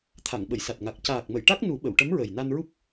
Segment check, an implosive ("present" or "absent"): present